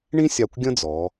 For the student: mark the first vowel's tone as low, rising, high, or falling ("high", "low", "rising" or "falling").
high